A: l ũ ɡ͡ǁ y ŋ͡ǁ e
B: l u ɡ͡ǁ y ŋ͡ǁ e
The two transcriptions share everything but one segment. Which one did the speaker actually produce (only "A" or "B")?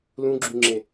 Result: A